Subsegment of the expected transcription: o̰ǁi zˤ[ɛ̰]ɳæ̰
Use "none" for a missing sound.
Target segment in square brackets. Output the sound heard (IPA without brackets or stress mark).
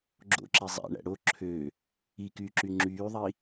æ̰